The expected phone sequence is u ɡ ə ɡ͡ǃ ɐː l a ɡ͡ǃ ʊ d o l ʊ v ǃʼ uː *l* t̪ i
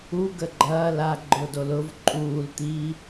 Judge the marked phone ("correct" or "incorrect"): correct